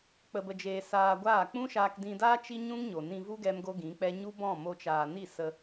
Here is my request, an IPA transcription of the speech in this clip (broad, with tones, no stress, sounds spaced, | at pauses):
k͡p ə˧ b ə˧ d͡ʒ eː˧ s aː˧ ɡʷ aː˦˨ k͡p ũ˦ ʃ aː˧ k d ĩ˧ d aː˦ t͡ʃ i˦ ɲ ũ˦ ŋ ɲ o˨ n ĩ˧ v u˦ ɡ ɛ˦ m ɡ o˦ ɡ ĩ˨˦ k͡p ɛ˦ ɲ u˦ b ɔ̃˦˨ m o˧ t͡ʃ aː˨ n i˦˨ s ə˧